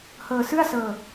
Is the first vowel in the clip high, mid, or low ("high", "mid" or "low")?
mid